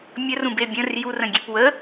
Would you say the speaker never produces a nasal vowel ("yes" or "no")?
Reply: no